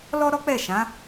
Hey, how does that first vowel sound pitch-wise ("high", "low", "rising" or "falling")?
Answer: high